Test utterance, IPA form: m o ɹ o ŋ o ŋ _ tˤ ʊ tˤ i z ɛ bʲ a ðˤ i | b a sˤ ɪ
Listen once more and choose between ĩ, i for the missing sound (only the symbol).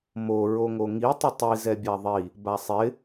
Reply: i